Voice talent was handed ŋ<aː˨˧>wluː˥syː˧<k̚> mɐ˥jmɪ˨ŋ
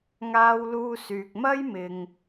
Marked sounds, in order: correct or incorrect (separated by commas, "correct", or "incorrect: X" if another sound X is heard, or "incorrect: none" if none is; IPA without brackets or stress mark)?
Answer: incorrect: aː˥, correct